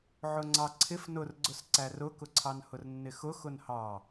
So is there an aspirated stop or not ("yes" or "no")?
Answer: yes